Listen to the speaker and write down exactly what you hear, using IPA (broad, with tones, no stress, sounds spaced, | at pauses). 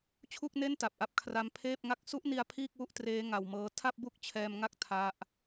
t͡ɕʰ u˥˩ k̚ n e˥˩ n t a˨˩ p̚ ʔ a˥˩ p̚ kʰ r a˦˥ m pʰ eː˥˩ p̚ ŋ a˦˥ k̚ s u˦˥ ʔ n i˧ a̯ pʰ iː˥˩ k̚ w u˥˩ ʔ t r eː˦˥ ŋ a˧ w m ɤː˦˥ tʰ a˥˩ p̚ b u˥˩ k̚ t͡ɕʰ ɛː˧ m ŋ a˥˩ k̚ tʰ a˦˥ ʔ